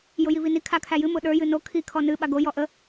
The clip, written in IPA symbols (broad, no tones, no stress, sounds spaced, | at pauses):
j ʊ j i v i n i kʰ a kʰ æ j ɨ m ʊ ɗ ə˞ j ɨ n o kʰ i kʰ ɔ n ɨ ɓ a ɡ o j ɔ ʔ ə